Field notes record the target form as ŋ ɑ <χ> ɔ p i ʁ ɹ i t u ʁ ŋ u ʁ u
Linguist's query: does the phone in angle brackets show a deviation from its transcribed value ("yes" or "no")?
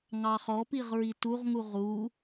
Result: no